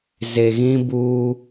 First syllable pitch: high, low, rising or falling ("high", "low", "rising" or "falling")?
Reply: low